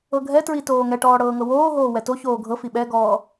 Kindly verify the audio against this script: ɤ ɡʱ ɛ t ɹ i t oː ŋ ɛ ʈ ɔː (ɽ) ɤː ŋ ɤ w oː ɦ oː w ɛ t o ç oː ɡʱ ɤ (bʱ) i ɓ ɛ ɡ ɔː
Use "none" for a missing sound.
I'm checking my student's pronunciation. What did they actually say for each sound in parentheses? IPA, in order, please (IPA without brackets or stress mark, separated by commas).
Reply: ɽ, f